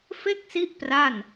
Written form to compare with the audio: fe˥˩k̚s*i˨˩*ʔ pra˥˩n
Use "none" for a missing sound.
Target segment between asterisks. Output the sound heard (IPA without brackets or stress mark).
i˦˥